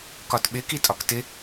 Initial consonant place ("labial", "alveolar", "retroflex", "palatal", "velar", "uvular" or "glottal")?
velar